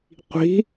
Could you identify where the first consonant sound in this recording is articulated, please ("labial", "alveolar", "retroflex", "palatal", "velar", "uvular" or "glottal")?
uvular